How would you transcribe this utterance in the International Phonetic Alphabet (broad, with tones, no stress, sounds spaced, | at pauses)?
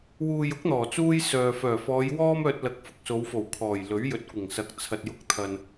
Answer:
w uː˨ j ʊ˨˥ k̚ n̪ ɔː˨˩ t͡s uː˥ j s œː˨ f œː˨˩ f ɔː˨˧ j w ɔː˥ m œː˧ t̚ l ɐ˨˥ k̚ f ʊ˨ k̚ s o˨˧ w f o˨˩ w kʰ ɔː˨˩ j l ɵ˨˥ ɥ j ɵ˨ t̚ kʷ ɪ˨˩ ŋ s ɐ˨˥ k̚ t͡sʰ ɐ˨ t̚ j ʊ˧ k̚ t̪ʰ ɐ˨ n